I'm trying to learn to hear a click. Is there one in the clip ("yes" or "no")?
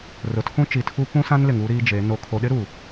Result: no